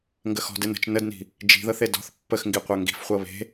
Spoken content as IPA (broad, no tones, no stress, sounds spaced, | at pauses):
ŋ ɡ ə x ɔ̤ d ɪ n ə̤ t͡ʃ n ə d n i̤ | d͡ʒ i̤ ð ɤ θ e d ɔ̤ θ pː ə x ŋ ɡ i qʷ œ ŋ ɡ i̤ f χʷ ɤ β e̤